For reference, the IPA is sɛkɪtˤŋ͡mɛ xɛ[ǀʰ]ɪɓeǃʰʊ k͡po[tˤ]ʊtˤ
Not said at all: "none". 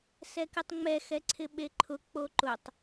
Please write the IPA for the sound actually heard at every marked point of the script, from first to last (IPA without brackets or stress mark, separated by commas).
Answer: ǀʰ, ǃ